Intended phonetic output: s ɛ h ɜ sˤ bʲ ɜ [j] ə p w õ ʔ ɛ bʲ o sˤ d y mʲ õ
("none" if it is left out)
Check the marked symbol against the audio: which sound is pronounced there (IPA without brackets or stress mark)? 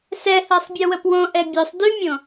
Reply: w